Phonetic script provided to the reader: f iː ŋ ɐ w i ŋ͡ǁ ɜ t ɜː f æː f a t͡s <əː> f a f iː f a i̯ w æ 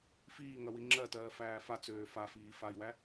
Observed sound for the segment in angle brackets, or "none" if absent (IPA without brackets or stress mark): øː